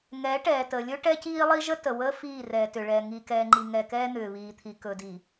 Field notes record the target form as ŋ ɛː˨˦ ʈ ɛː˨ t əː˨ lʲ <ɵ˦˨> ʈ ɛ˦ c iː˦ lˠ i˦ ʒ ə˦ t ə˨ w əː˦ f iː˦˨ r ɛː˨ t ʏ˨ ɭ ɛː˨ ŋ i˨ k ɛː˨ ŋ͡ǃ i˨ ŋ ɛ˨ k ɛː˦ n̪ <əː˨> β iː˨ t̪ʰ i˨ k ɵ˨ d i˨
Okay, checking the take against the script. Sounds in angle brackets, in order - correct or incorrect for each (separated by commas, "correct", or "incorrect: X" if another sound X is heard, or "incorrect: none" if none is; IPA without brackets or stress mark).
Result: incorrect: ɵ˦, incorrect: ʏː˨